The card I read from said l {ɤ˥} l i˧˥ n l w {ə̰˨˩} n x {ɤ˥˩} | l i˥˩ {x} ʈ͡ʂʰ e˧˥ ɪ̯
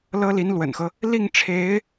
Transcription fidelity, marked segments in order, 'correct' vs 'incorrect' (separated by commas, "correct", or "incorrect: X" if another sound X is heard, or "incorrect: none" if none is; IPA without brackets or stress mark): correct, correct, incorrect: ɤ˦, incorrect: ŋ